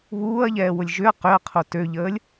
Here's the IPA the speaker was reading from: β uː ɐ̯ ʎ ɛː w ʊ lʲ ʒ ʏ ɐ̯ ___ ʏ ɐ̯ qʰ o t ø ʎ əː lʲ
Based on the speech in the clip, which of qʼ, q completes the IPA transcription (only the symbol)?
q